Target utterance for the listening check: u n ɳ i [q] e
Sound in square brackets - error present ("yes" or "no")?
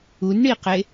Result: no